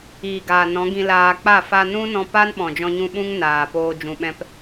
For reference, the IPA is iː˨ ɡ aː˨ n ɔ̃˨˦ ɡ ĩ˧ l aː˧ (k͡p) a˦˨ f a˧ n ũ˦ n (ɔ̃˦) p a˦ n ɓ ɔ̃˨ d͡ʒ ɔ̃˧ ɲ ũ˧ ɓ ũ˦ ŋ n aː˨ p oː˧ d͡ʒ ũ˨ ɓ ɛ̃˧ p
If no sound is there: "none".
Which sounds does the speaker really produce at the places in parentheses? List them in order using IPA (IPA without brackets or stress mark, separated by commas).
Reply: k͡p, ɔ̃˧